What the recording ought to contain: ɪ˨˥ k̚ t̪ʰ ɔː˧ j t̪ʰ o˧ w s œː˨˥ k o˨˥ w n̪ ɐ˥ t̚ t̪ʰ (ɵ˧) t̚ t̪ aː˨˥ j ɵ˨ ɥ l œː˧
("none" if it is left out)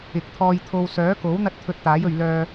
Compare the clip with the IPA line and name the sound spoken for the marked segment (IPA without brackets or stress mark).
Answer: ɵ˧